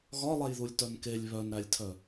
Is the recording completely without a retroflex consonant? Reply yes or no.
yes